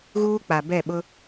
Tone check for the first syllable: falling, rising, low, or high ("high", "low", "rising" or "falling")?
high